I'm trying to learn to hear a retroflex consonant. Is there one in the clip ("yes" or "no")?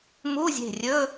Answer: no